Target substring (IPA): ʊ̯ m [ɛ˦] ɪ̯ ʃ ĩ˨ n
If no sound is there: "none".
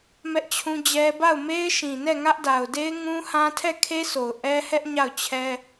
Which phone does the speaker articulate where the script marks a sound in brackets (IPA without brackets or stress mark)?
e˦